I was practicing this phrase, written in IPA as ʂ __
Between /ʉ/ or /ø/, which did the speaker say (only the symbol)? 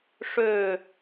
ø